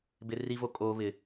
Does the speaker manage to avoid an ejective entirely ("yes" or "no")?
no